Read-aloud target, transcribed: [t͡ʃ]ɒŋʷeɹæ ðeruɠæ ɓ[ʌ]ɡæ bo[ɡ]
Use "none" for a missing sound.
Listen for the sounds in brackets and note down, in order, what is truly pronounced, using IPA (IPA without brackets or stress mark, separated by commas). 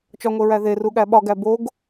t͡ʃ, ɒ, ɡ